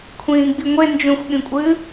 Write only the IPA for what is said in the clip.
kʷʰ ĩː ɡ͡b i ŋʷ e n d͡ʒ ũ xʷ ɠ ĩ kʷʼ ɨː

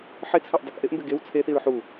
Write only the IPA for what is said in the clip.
ħ ɪ t͡sʰ a ʔ dˤ ɪ k ʔ ɪ ʔ m b ɪ ɡ e w t͡sʰ e θ i ɹ ħ u

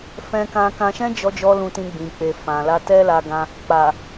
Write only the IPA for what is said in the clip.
f ɛ̃˧ k ã˧ k ã˧ ʃ ɛ̃˦ d͡ʒ ɔ˧ d͡ʒ ɔ˧ l ũ˧ t ĩ˧ ɡ͡b ĩ˨ k͡p e˨ f ã˨ l a˧ t ɛ˦ l a˧ ɡ ã˧ | k͡p a˨

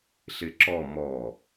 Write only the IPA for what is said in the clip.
ɬ ɪ ǁ ɔ m ɔ

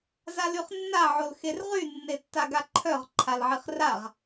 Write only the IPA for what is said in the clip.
z a l y χ nː a ʕ o l x e r ʁ y nː e tː a ɡ a ǃʰ œ ʁ ǃʰ a l ʕ i χ r a ʁ

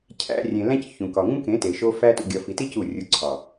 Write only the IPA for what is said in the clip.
cʰ æ̰˧ rʲ ẽ˨ l æ̃˦ c ç ũ˨ k ɒ˨ ŋ ũ˦ k ẽ˨˦ t e˨ ʃ o˦ f æ˦ t ṵ˨ ɡʲ ɒ˨ f i˨ t i˦ c u˦˨ rʲ u˧ ǀʰ ɒ˨

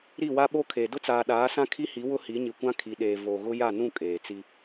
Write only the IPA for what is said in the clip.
ɾ i˦˨ w a˦ ɓ o˦ kʰ e˨ d ʊ˦ t͡s aː˨ ɗ aː˨˦ s ã˦ kʰ i˦ h i˨˦ w ʊ˦ h i˨˦ ɲ i˨ kʷ ã˦ kʰ i˨ ɗ eː˨ v o˨ ɣ ʊ˦ j a˦˨ n ũ˦˨ kʼ eː˨ t͡s i˦

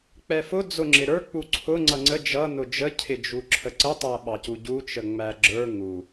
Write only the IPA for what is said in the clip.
k͡p ɛ f ʊ d͡z ʊ ŋ͡ǁ ɪ ɾ ə˞ k͡p u ǀʰ ʊ ŋ͡ǀ ʌ ŋ͡ǀ ə d͡ʒ ʌ n ʊ d͡ʒ ə cʰ ɪ d͡ʒ u ǁʰ ə ǀ ə tˤ æ ɓ ɑ c u ɟ u t͡ʃ ə ŋ͡m æ ɡ͡ǁ ə˞ ŋ u

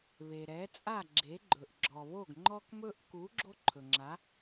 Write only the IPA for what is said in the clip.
β e˩ ɾ ɛ˩˥ t͡sʼ a˥˩ ɡ͡ǁ e˩˥ ɡ͡ǃ ɵ˩ ʔ ɡ͡ǁ ɔ˩ β o˥˩ ɡ ŋ͡ǃ ɔ˥ k m ɵ˥ ʔ k u˩˥ ɡ͡ǁ o˥ ǃʰ ɵ˩ ŋ͡ǁ a˩˥

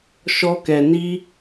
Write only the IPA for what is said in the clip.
ʃ ɔ˧ k ɛ˨ n i˧

